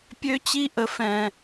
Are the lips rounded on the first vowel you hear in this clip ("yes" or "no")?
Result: yes